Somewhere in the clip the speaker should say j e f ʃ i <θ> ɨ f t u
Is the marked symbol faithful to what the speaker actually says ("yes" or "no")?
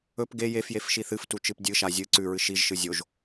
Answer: yes